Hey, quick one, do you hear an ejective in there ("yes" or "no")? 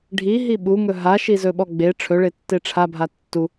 no